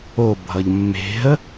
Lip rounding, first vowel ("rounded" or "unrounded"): rounded